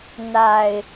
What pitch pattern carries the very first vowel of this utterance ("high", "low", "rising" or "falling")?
low